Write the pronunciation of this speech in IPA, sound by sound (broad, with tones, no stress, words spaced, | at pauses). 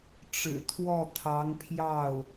ʈ͡ʂɻ̩˨˩t̪ʰwɔ˥˩t̪ʰɑ˧˥ŋpʰjɑ˥˩ʊ̯